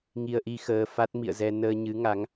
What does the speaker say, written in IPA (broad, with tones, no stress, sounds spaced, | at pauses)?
ŋ i˧ ə̯ ʔ i˧ x əː˧ f a˦˥ t̚ m ḭ˧˨ ə̯ z ɛ˧ n əː˧ ɲ ɨ˨˦ ŋ a˨˦ ŋ